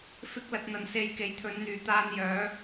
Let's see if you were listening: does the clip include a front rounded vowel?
yes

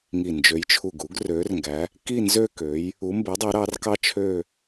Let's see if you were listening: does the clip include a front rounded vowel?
yes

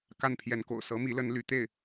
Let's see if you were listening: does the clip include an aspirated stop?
yes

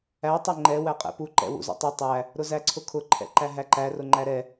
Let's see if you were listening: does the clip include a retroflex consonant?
no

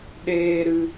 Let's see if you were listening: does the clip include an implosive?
yes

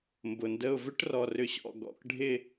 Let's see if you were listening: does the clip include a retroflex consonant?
yes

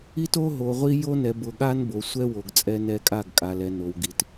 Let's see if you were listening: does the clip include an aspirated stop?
no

